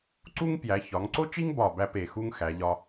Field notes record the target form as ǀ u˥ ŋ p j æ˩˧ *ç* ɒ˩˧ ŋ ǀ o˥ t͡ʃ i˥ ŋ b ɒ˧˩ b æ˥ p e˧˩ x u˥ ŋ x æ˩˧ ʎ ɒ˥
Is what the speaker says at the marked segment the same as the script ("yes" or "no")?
yes